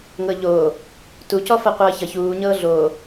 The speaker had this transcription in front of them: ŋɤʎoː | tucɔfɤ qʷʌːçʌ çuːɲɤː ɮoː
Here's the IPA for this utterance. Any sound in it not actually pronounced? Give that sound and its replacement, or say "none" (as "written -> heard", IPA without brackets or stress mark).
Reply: none